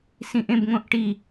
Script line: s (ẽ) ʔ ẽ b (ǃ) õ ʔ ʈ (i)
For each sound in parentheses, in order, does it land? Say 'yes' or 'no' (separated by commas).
no, no, yes